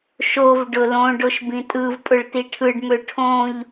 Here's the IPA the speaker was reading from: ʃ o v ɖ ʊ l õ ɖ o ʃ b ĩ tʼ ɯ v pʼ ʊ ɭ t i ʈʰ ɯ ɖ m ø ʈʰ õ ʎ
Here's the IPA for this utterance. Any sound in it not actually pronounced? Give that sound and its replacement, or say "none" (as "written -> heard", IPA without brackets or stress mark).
none